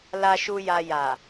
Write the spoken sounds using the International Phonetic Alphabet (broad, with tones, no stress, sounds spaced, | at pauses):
l a˨ ʃ u˨ j a˨ j a˨